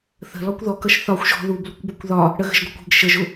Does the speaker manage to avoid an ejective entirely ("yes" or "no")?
yes